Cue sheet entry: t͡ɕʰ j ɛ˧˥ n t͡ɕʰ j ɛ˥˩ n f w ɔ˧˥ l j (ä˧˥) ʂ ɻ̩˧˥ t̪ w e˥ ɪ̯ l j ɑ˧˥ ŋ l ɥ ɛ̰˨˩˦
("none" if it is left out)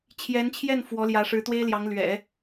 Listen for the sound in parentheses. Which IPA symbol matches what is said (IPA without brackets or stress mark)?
ä˧˥